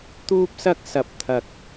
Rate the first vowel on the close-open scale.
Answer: close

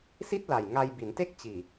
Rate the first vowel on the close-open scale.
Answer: close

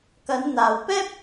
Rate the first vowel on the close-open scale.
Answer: open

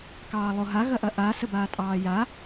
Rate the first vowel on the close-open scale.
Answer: open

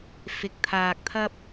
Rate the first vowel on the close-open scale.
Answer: close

